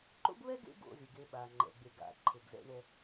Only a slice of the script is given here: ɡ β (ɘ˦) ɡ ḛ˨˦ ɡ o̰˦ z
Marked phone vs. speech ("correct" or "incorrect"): incorrect